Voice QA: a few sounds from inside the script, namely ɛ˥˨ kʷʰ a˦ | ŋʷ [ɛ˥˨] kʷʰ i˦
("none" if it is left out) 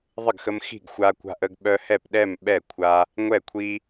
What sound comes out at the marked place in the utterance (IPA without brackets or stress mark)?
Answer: ɛ˥˨